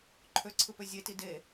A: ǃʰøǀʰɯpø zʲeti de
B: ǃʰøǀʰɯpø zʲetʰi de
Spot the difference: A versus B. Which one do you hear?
A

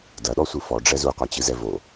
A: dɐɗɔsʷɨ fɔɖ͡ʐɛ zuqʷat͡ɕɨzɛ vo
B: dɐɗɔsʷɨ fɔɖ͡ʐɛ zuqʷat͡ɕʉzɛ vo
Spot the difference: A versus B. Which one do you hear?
A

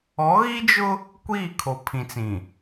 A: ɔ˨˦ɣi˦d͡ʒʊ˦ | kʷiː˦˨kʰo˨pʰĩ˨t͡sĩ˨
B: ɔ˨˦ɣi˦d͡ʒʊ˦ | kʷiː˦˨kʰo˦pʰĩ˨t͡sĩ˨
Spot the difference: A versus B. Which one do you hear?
A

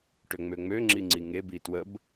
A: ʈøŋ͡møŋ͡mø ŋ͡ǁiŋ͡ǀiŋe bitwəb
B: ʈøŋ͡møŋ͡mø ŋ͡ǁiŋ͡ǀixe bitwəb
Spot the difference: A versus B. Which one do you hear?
A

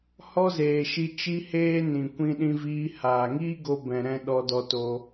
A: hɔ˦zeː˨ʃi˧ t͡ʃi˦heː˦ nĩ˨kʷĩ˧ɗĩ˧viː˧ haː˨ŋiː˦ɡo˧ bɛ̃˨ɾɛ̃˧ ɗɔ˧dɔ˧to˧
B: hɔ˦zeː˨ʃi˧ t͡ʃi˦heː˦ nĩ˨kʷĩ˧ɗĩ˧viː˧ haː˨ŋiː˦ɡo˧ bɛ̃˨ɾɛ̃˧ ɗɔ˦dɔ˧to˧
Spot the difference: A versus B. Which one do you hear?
A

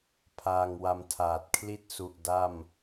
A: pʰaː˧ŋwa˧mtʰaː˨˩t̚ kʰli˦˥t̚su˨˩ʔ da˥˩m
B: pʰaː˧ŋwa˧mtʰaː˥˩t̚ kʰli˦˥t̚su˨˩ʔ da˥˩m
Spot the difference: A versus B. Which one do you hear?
A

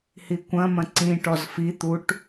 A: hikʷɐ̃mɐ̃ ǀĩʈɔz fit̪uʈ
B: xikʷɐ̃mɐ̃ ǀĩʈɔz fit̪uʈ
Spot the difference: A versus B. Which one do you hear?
A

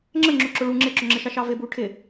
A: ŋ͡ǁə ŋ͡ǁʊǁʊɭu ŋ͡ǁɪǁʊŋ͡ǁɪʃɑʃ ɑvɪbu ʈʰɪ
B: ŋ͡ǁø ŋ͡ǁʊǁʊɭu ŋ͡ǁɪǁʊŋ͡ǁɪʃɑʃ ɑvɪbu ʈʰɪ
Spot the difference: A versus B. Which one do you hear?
A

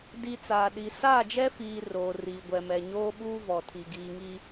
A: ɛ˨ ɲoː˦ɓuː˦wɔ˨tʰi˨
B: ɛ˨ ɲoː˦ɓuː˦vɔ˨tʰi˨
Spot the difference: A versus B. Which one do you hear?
B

